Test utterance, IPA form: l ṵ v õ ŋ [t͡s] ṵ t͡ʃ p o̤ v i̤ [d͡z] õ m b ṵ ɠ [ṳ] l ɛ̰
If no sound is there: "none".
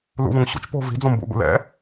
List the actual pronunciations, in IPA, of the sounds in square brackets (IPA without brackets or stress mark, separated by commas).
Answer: ɕ, d͡z, ṵ